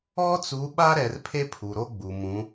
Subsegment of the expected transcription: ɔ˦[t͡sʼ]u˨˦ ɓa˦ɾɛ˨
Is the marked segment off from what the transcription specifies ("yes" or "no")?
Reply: yes